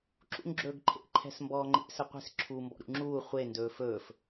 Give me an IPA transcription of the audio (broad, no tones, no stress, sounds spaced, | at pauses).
ǁ ṵ ŋ ɡ͡ǁ ɵː ɡ ǃʰ ḛ ǃʰ ɛ̤ s m b ɔː ŋ͡ǃ ḛ s ə qʷ e̤ s ǁʰ uː m b ɔ̰ ɾ ṵ ŋ͡ǁ uː χʷ e n d ɵː f ɵː f